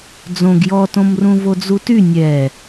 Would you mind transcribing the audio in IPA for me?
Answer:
d͡zõɡ jɔtõmrũ vod͡zuty nʲɛ

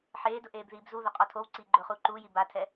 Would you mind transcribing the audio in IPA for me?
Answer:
ħeːdʊ ʔeːbðiːbzuðʊ qʼɔtʰowǀiː ɡ͡ǃʊːχuːǃuːji batʰɛ

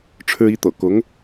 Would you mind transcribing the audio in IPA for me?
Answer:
ʈ͡ʂʰɻ̩˥ i˧˥t̪ɤ̰˨˩ kʊ˧˥ŋ

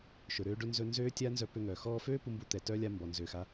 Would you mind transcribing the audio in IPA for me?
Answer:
ʃɵ˩ɾøː˧ ɖɵ˧nzɵ˧nzøː˦˥tʲa˦˥ nzœ˧pø˧ŋœː˩ xɔː˧føː˦˥ pu˧mbu˧ t̪ɛ˩tœ˦˥lʲa˧ mbɔ˩nzøː˩xa˧

